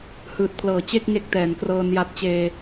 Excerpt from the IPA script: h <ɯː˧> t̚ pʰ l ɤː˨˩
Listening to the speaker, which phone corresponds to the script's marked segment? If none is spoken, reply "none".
ɯː˨˩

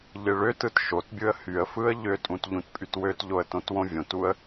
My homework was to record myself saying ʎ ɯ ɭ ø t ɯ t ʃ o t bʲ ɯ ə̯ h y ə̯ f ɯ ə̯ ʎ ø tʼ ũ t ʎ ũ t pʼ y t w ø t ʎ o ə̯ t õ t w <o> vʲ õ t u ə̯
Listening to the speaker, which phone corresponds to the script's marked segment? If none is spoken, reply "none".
õ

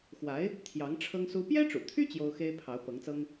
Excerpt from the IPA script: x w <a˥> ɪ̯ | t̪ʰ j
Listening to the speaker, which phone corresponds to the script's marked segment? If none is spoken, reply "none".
a˧˥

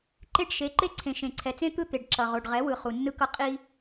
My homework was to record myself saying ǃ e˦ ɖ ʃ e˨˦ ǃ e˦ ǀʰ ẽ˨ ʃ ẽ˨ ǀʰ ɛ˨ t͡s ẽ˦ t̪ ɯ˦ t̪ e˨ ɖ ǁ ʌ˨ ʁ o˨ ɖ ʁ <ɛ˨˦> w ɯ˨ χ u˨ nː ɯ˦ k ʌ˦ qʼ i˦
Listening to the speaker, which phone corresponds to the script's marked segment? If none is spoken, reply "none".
ɛ˨˦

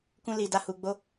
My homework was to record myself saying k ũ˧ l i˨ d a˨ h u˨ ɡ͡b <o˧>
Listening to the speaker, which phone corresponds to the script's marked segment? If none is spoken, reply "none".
o˧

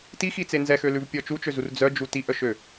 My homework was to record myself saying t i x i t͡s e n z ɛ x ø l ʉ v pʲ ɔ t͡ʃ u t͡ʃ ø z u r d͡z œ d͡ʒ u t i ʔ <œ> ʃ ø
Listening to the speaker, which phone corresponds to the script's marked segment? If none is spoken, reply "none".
œ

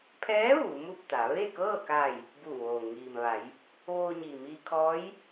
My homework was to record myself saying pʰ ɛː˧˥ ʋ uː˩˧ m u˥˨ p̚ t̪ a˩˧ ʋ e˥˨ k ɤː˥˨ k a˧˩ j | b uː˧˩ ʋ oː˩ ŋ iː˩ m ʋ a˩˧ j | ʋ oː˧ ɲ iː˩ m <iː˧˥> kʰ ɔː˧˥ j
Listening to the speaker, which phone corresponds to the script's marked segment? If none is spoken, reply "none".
iː˧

